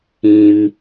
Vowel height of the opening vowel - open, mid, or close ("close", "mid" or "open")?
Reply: close